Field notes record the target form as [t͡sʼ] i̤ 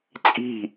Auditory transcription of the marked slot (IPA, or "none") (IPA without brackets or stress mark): t͡sʼ